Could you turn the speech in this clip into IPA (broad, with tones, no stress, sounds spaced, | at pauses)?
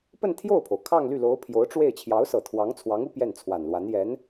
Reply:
p ə˥˧ n t̪ʰ j o˥˩ ʊ̯ pʰ o˩ ʊ̯ kʰ ɑ˥˧ ŋ l y˥˩ l o˧˥ ʊ̯ pʰ j o˧˥ ʊ̯ ʈ͡ʂ w e˥˩ ɪ̯ t͡ɕʰ j ɑ˧˥ ʊ̯ s ɤ˨˩ t̪ʰ w ɑ˧˥ ŋ t͡sʰ w ɑ˧˥ ŋ u˥ p j ɛ˥˩ n t͡sʰ w a˨˩ n l w a˧˥ n j ɛ˧˥ n